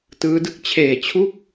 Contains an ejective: no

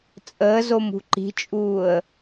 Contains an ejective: yes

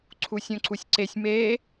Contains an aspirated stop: yes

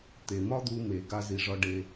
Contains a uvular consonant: no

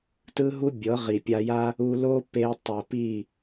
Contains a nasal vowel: no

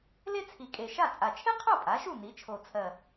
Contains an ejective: yes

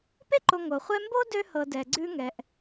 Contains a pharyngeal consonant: no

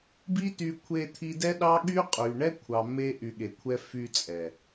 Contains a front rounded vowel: yes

